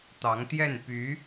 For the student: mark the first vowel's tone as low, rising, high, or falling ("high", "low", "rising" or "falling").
rising